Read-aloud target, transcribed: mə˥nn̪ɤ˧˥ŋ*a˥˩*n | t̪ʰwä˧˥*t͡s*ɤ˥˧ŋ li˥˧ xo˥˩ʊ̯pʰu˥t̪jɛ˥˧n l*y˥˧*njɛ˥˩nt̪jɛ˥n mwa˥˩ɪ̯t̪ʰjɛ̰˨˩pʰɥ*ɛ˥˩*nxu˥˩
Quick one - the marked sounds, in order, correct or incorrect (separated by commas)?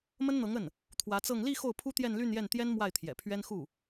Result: incorrect, correct, correct, incorrect